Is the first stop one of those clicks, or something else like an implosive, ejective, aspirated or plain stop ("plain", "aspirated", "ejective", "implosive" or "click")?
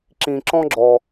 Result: click